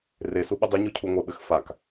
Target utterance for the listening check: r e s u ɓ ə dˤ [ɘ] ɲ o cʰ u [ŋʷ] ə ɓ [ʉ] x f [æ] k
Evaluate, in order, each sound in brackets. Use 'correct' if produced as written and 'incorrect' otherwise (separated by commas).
correct, correct, incorrect, incorrect